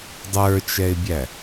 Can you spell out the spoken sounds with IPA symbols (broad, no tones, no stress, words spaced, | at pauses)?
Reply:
dˤə˞t͡ʃɛɪ̯bʲæ